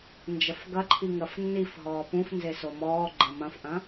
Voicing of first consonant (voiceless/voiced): voiced